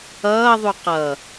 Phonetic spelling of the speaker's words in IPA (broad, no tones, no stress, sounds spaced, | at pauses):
ʌː ðˤ u q ʌ